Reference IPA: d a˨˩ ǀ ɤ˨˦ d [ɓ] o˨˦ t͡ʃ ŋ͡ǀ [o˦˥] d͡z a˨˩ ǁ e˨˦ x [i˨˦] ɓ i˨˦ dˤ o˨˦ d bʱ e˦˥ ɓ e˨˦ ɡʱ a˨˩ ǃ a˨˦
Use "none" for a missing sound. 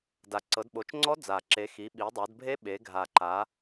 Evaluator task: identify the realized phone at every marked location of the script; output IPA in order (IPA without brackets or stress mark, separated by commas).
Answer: ɓ, ɔ˦˥, i˨˦